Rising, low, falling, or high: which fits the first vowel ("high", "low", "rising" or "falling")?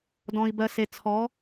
low